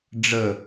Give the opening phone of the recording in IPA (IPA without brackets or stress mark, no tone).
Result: ɖ͡ʐ